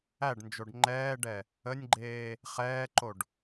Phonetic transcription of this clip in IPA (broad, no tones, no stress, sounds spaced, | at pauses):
æ ɖ n d͡ʒ o ɖ ŋ͡ǃ ɛː ɖ ɛ | ə nʲ ɡ͡ǃ eː | χ ɛː ǃ o ɖ